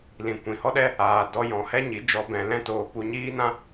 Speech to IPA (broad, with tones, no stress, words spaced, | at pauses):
lĩ˨ kʷĩ˨hɔ˦ɗɛ˦ | aː˨dɔ˧ jɔ̃˨hɛ˦ɲi˨˦d͡ʒɔ˧ bɛ̃˧lɛ̃˦toː˧ pu˧ɲiː˦nã˦